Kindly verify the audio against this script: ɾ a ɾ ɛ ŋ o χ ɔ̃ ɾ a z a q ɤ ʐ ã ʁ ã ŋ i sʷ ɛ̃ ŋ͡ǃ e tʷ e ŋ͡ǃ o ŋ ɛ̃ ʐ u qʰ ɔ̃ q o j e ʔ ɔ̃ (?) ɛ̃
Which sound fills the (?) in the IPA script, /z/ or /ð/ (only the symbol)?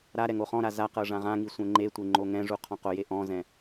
z